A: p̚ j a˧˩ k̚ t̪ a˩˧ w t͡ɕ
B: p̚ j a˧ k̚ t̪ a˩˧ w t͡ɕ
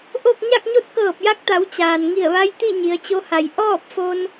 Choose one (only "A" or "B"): B